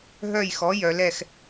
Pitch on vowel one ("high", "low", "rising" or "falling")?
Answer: falling